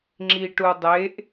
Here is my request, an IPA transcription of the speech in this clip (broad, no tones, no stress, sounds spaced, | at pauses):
ŋ͡ǁ i ʈ u dˤ e ʔ